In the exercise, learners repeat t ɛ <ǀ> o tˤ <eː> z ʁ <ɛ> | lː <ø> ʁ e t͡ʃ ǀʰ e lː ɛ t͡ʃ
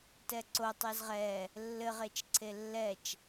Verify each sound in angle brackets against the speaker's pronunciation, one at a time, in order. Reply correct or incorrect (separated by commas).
correct, incorrect, correct, incorrect